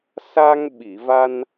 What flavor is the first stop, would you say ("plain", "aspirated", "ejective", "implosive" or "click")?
implosive